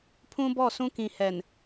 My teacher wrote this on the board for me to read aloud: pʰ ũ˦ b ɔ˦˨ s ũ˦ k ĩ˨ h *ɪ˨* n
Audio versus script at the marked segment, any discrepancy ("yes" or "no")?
yes